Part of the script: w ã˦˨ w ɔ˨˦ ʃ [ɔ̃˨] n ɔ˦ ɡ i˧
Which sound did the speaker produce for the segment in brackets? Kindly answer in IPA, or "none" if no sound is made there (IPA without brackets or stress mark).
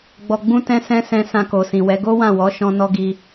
ɔ̃˦